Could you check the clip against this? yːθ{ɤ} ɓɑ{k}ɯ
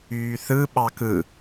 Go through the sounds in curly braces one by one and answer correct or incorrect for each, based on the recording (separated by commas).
incorrect, correct